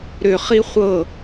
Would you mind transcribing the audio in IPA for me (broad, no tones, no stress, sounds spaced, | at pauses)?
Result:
ɾ ʏ χ i χʷ ɤ